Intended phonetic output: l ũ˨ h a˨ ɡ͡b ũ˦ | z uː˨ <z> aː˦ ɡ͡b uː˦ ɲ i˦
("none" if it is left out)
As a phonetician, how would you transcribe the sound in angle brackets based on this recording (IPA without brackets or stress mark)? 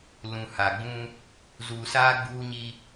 s